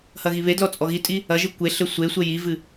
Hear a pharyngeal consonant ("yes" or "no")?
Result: no